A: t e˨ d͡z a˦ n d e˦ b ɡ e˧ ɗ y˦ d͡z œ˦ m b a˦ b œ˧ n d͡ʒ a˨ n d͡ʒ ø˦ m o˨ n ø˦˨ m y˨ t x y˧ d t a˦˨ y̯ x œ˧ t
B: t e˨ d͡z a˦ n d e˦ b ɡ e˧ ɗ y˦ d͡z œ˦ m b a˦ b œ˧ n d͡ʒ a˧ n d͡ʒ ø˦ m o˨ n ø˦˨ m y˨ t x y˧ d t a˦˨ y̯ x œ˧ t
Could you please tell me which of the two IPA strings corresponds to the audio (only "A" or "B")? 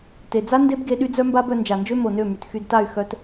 A